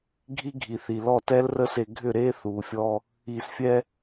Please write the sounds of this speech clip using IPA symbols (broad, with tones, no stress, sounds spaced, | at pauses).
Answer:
ɡʱ i˦ ɡʱ i˨ θ i˨ l ɔ˦˨ t ɛ˦ l r ə˦ s e˧ ɡʱ ʏ˦˨ ɾ eː˦ θ uː˨ fʲ ɔ˧ | iː˨ s fʲ ɛ˧